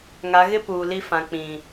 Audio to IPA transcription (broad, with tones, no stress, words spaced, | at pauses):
ŋa˨˦ ɣɪ˦ puː˨li˦fã˨ k͡pĩ˨